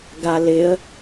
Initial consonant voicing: voiced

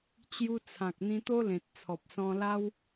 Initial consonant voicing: voiceless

